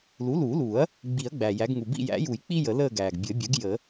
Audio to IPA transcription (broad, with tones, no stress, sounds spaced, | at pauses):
l u˩˥ l uː˨˩˦ l uː˨˩˦ ɐ̯ | ɡ͡b i˨˩˦ ɐ̯ ɡ͡b æ˩ j æ˩˥ ɡ ŋ u˩ b ḭ˦˨ j æ̰˨˩˦ j u˨˩˦ j k͡p i˥ j ə˨˩˦ l əː˦˨ ɡ æː˩ ɡ bʲ ɘ˨˩˦ bʲ ɘ˩˥ ɡ j ə˨˩˦